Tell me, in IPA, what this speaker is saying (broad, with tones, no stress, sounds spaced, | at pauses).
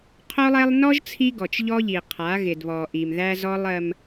qʰ o˦ lˠ ɛ˦ lˠ n ɔ˦ ʒ t͡sʰ i˦ ɡ ɔ˨ t͡ʃ ʎ ɔ˦ ʎ i˨ qʰ a˨˦ ɣ ɪ˨ d β ɔ˨ ʔ i˨ m ð æ˦ z ɔ˦ lˠ ɜ˦ m